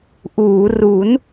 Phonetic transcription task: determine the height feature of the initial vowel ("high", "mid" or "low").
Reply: high